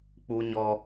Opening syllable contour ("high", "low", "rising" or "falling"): high